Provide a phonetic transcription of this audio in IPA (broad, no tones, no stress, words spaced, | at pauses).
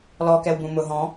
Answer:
lɔkɛwbũ mʊ ɦɔ̃